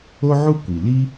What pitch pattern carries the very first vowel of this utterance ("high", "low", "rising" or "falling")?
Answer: high